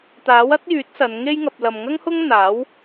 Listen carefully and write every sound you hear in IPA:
t̪ aː˨˥ w ɐ˥ t̚ j yː˨˥ t̚ s ɐ˨˧ n ŋ e˥ j ŋ ɐ˧ p̚ l ɐ˨ m ŋ ɐ˥ ŋ h ʊ˥ ŋ n̪ aː˨˥ w

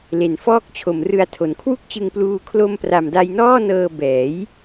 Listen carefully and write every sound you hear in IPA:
l e˨˩ n f ɔː˥˩ k̚ t͡ɕʰ o˨˩ m r ɯ˧ a̯ tʰ o˩˦ n kʰ w u˥˩ k̚ t͡ɕ ɯ˧ ŋ p l uː˧ kʰ l o˧ m p r a˨˩ m d a˧ j n ɔː˥˩ n ɤː˧ b ɛː˩˦ j

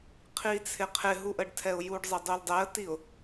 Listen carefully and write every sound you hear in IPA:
qʰ i t͡sʰ ɪ qʰ ɪ ɦ u ʔ ə ɖ tʰ ɛ ʊ̯ j u ɖ zˤ ɪ dˤ u l dˤ ɛ ə̯ t i ʊ̯

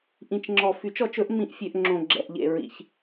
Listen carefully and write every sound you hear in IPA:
ʔ ĩ˨ t͡ʃ ŋ͡ǁ ɔ˨ f y˨˩˦ t͡ʃ ɔ˨˩˦ t͡ʃ ɵ˨˩˦ ʔ m ĩ˨ ʔ fʲ ø˨ ʔ ŋ͡ǁ õ˨ ɡ͡ǁ ɛ̰˨ ʔ ʎ ḛ˨ ɹ ḭ˨ ç

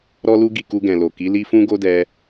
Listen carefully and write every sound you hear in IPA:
ɾ ɔ˦ l u˦ ɡ i˦˨ k u˧ ɡ ɛ̃˨ l o˨ k i˨˦ l i˦ f ũ˦ ɡ o˦ d ɛ˧

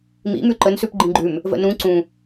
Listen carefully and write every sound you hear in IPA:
m ḭ m ʉ ǃ ə n s ʉ p ɡ͡ǃ ĩ ɡ͡ǃ ʉ m | v ə̰ n ũ ǀ ũ

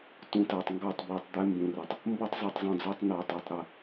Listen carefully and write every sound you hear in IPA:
t ũ˨ t a˨ tˤ ŋ ɡ ɑ˦˨ tˤ b u˨ tˤ d̪ ɛ˦ m b ũ˨ r ɤ˨ tˤ | m b ɤ˦ tˤ zˤ u˨ tˤ zˤ ũ˨ d͡z ɑ˦ tˤ n ɑ˨ tˤ a˨ tˤ ɾ ə˦

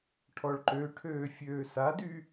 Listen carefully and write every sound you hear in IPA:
ʈʰ ɔ ɭ ǃ ø ʈʰ øː fʲ øː s a d y

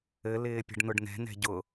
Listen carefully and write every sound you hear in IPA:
ɘ l ɪː pʲ ə̤ ɖ n ʊ ɖ n ɛ̤ n ɛ̤ ɟ ʊ

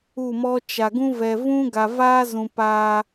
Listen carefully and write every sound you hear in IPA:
u˦˨ m ɔ˦ t͡ʃ a˨ ɡ ũ˦ v ɛ˨ v ũ˦ ɡ a˨ v aː˦ z ũ˨ p aː˧

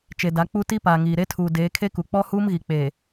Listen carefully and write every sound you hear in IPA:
t͡ʃ e˨ d a˨˦ k͡p u˦ t i˦ p aː˨ ŋ iː˨ ɾ e˦ tʰ uː˨ d eː˨˦ kʰ e˦ k u˨ k͡p ɔ˦ h uː˦ m ɣ i˨ k͡p e˨

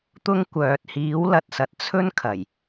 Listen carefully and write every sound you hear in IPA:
t̪ ʊ˥ ŋ kʷ œː˨ t̚ h iː˨˥ w l ɐ˨ t̚ s ɐ˨ t̚ t͡sʰ ɵ˥ n kʰ ɐ˨˩ j

